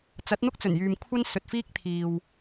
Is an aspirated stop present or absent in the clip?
present